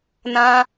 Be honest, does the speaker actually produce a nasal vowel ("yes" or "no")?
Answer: yes